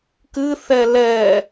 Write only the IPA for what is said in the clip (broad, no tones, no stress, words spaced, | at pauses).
kɨθɛ lɛ